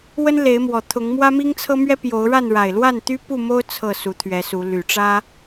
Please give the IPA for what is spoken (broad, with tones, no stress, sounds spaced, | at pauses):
w ə˦ n l e˨˦ ɪ̯ m w ɔ˨˩ t̪ʰ ʊ˨˦ ŋ m w ä˦ m i˦ ŋ t͡sʰ ɤ˦ m ɥ ɛ˦ p j o˨˦ ʊ̯ ɻ a˥˨ n ɻ a˨˩ ɪ̯ l w a˥˨ n t̪ y˦ p u˥˨ m o˦ ʊ̯ t͡sʰ ɤ˥˨ s u˨˦ t̪ʰ ɥ ɛ˨˦ s u˨˦ l y˨˩ ʈ͡ʂ ä˦